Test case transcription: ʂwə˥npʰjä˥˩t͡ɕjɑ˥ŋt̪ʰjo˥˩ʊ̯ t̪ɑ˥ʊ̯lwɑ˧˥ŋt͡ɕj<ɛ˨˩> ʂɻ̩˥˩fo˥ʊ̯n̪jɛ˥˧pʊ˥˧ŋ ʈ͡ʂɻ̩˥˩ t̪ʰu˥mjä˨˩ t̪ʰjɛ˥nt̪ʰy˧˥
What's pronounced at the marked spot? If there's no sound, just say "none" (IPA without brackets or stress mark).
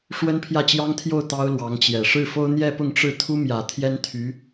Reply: ɛ˨˩